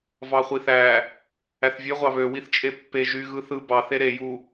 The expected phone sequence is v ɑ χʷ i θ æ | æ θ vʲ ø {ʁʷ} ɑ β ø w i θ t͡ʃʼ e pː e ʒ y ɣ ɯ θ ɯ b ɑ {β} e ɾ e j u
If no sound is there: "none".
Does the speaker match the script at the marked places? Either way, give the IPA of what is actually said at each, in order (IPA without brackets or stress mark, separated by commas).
ʁʷ, θ